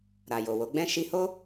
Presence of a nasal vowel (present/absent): present